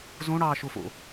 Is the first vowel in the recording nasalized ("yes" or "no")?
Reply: yes